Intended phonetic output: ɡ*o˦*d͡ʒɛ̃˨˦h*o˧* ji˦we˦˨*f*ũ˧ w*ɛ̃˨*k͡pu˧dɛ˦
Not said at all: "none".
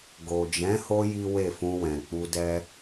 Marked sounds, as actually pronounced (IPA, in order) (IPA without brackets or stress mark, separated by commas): o˨, o˧, f, ɛ̃˨